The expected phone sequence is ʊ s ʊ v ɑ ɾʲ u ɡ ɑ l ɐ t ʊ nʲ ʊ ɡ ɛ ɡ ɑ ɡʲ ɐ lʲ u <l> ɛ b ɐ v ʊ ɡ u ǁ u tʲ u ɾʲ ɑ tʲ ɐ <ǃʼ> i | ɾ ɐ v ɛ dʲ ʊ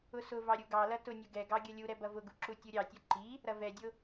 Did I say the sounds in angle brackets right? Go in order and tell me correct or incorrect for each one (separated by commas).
incorrect, incorrect